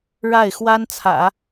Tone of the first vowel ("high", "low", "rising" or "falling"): falling